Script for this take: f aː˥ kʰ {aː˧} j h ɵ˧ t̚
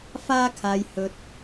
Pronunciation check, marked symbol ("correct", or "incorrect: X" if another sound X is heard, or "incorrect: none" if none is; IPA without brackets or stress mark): correct